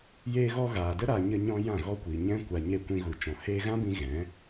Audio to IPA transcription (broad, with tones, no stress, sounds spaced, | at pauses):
j eː˧ ɣ ɔ˧ ɣ aː˨ d ə˦ ɾ a˧ ɲ ə˧ ɲ ɔ̃˧ j ã˦˨ ɣ ɔ˦ kʷ iː˨ ɲ ɛ̃˦ kʷ a˧ ɲ e˦˨ kʷ ĩ˧ ɣ u˨ t͡ʃ ɔ̃˨ h eː˧ ɣ ã˦ b ĩ˧ ɣ ɛ̃˨˦